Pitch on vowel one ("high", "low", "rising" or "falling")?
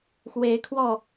rising